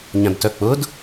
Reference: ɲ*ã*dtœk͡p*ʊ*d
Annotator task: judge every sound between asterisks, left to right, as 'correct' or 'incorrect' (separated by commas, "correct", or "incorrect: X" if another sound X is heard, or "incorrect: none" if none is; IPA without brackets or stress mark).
correct, correct